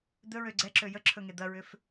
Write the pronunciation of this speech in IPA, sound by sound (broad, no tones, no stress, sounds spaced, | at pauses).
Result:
d̪ ɵ ɹ ø ɡ͡ǀ ɛ ǁ ø j ə ǁʰ ɵ ŋ e d̪ ɐ ɹ ʏ f